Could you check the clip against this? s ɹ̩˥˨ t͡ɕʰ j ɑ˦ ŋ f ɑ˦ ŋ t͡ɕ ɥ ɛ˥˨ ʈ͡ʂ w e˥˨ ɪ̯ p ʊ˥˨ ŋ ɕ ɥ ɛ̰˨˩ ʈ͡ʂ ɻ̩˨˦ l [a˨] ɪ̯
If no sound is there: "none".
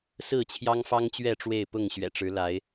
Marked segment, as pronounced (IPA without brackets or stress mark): a˨˦